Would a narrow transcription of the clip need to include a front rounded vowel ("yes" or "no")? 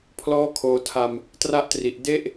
no